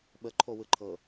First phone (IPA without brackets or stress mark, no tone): ɓ